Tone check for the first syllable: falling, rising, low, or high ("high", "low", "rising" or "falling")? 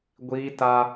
high